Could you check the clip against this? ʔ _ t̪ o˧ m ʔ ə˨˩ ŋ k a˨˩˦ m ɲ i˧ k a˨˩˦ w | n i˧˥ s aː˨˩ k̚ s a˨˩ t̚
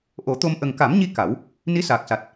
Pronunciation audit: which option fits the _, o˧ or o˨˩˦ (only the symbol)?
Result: o˨˩˦